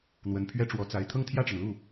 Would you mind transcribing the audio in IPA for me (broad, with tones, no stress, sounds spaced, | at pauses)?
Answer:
n̪ w ə˧˥ n pʰ ɥ ɛ˥ ʈ͡ʂ w ɔ˧˥ t͡s a˧˥ ɪ̯ t̪ʰ ɤ˥˧ ŋ t̪ʰ j ä˥˩ ʈ͡ʂ ə˩ n l u˥˩